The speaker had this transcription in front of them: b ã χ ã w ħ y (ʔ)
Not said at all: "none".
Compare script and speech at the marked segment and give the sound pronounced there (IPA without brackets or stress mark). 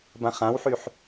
ħ